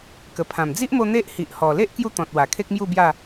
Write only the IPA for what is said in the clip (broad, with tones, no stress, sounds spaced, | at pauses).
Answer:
k ə˨˩ pʰ ã˨˩ m d͡z i˦ ʔ m o˧ n̪ e˦ ʔ h i˨ ʔ h ɔ˨˩ l e˦ ʔ k j u˦ t̪ ɔ̃˨ t̚ w a˨˩ kʰ e˦ k̚ m j u˥˧ b j a˥˧